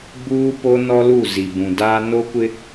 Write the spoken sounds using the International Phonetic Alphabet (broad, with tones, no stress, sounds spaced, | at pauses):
b uː˦ p o˦ n ɔ˦ l u˦˨ z i˨ b ũ˨ d aː˦ n o˦ kʷ ɪ˦